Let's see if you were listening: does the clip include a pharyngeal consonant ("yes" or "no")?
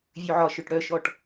yes